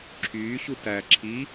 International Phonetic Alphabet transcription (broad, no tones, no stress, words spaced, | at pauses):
ǁʰyːɕu tæ ǁʰi